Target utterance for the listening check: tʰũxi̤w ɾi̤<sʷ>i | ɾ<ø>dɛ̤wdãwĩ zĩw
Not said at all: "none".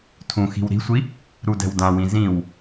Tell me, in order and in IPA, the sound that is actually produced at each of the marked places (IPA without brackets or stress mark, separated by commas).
sʷ, u